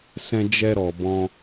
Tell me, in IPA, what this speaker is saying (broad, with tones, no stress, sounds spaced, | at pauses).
s ɛ̃˧ d͡ʒ ɛ˧ ɾ ɔ˨ b ɔ̃˧